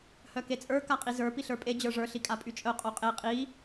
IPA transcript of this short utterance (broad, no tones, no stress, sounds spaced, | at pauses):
h œ k e t͡sʼ ə˞ k a qʼ i z ə˞ p i ɬ ə˞ pʼ e d͡ʑ ə˞ ʐ ə˞ ɬ i kʼ a pʼ y t͡ʃʼ œ qʼ o qʼ e qʼ i